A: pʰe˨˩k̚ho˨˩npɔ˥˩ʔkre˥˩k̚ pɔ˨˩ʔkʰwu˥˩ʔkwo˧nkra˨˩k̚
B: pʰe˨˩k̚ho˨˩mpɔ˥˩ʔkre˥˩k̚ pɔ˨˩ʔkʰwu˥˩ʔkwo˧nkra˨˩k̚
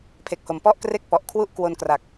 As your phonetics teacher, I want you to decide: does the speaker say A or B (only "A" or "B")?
B